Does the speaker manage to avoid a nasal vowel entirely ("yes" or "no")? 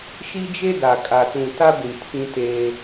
no